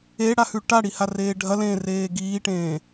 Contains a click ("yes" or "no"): no